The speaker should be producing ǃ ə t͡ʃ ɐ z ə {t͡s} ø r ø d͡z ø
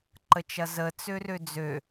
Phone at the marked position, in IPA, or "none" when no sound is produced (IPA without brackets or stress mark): t͡s